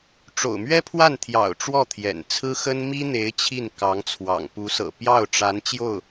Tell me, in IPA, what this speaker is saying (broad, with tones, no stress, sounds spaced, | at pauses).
ʈ͡ʂ o̰˨˩ ʊ̯ m ɥ ɛ˥ pʰ w a˥˩ n t̪ʰ j ɑ̰˨˩ ʊ̯ ʈ͡ʂ w ɔ˥˩ t̪ʰ j ɛ̰˨˩ n t͡sʰ ɹ̩˥ x ə˥ n m i˥ n̪ e˧˥ ɪ̯ t͡ɕʰ i˥˩ n k ɑ˧˥ ŋ t͡sʰ w ɑ̰˨˩ ŋ p u˧˥ s ɤ̰˨˩ p j ɑ˥˩ ʊ̯ ʈ͡ʂ a˧˥ n t͡ɕ j o˥˩ ʊ̯